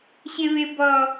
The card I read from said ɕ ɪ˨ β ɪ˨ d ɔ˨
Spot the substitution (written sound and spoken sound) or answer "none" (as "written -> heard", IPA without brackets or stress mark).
d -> b